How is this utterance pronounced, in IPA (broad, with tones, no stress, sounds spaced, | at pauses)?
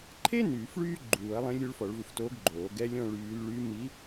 ǃʰ e˥ n yː˨˩˦ f ɭ yː˥ ɡ͡ǃ uː˨˩˦ ɐ̯ lˠ ẽ˧˥ lʲ u˧˥ ɭ f ɔ˨˩˦ ɭ v u˨ f t oː˧˥ ɡ ɡ͡ǃ oː˨˩˦ ɡ ɛ˧˥ lʲ ɔ̃˥ ɭ yː˧˥ l ɭ yː˧˥ m i˧˥